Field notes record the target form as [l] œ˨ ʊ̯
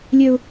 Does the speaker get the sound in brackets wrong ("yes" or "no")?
yes